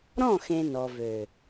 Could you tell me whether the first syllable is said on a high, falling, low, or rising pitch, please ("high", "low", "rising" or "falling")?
falling